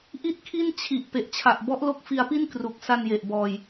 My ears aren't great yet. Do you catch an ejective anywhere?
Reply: no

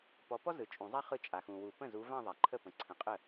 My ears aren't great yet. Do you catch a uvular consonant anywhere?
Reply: yes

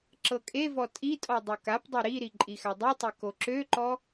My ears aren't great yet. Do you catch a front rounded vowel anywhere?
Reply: yes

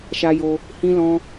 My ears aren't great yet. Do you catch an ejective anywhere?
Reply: no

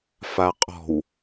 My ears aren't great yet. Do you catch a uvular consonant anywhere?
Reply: yes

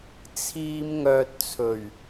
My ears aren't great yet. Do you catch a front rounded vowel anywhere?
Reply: yes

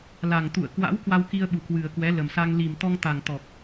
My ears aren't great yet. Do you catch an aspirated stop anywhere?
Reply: no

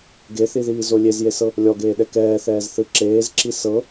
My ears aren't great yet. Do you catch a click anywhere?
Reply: yes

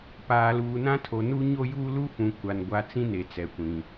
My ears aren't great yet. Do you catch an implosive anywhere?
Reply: no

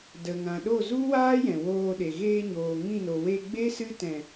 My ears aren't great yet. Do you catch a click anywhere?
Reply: no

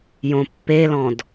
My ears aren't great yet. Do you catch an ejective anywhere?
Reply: no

